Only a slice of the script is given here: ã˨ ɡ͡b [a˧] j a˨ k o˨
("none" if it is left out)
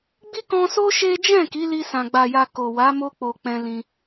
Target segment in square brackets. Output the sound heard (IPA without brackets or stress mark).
a˨